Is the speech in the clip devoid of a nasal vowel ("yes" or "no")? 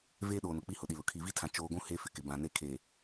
no